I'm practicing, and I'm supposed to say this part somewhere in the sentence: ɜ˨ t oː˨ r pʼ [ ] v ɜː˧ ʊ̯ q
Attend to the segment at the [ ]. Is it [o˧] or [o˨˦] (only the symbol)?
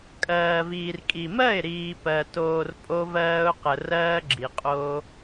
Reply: o˧